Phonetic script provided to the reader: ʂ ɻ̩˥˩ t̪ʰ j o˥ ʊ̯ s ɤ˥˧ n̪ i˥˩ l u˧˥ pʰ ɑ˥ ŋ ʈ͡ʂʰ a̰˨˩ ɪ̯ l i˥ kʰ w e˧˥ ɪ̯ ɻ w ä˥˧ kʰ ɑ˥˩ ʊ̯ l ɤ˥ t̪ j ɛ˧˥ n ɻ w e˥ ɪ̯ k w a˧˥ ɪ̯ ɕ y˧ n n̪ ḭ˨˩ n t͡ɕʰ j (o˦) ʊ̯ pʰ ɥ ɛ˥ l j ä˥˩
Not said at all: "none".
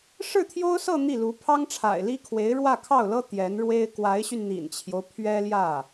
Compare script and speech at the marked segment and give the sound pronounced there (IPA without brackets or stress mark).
o˦